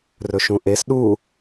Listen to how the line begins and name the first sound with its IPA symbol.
r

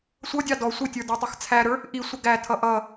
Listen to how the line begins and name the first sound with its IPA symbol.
sʷ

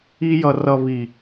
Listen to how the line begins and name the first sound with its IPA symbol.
i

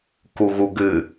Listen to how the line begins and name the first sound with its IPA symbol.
k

